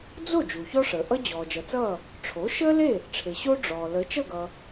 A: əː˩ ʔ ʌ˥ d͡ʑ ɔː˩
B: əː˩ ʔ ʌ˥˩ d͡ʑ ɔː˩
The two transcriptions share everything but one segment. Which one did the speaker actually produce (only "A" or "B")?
A